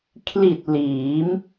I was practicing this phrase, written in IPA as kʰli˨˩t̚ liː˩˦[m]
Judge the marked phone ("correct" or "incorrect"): correct